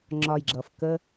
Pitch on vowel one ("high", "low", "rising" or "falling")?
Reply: low